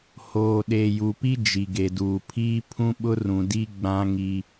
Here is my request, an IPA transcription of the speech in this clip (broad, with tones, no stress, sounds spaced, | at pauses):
h oː˨ ɗ e˨ j u˨ p i˦ d͡ʒ i˨ ɡ e˨ d uː˨ pʰ iː˦ pʰ ũ˦ ɓ ʊ˦ r ũ˨ d i˦ ɡ͡b ã˦ ŋ i˦